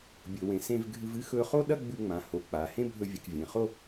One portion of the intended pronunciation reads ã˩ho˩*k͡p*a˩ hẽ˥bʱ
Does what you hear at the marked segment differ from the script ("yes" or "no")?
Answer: no